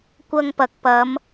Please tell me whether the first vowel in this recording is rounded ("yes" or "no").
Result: no